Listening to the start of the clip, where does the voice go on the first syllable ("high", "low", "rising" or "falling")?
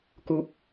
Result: high